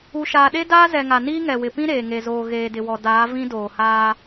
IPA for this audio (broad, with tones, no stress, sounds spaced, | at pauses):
u˨ ʃ aː˨ ɗ e˦ d aː˦ z ɛ˨ ŋ a˨ n iː˦ ŋ ɛ˨ w ɪ˨ p ĩ˦ ɾ eː˨ ŋ e˨ z oː˨ ɣ eː˨ d ɪ˨ w ɔ˨ d aː˨˦ v ĩ˦ d oː˨ h aː˦